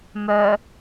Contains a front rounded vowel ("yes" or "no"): yes